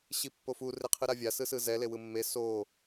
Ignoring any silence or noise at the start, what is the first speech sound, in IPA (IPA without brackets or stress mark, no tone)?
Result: ɕ